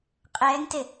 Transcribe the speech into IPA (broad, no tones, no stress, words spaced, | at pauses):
qʼɛːŋte